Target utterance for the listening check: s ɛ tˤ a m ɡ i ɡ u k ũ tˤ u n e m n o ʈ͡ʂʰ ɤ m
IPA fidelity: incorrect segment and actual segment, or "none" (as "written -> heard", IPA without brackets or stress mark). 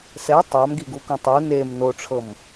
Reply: none